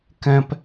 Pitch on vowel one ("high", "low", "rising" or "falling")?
high